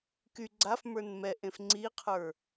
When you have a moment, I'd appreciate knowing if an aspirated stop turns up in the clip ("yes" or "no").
yes